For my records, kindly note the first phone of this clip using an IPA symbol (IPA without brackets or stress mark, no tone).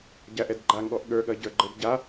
ɟ